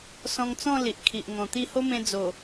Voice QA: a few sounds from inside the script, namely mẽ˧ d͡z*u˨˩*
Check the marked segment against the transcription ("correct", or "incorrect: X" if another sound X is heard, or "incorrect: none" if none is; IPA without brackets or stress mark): incorrect: o˨˩